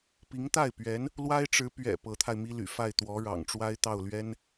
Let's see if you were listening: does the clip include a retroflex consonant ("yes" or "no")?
yes